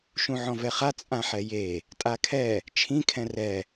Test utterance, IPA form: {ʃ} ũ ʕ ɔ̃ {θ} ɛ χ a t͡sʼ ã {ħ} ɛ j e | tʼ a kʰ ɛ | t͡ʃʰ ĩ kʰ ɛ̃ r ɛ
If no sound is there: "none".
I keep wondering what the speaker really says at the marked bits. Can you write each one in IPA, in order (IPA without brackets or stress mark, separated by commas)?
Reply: ʃ, v, ħ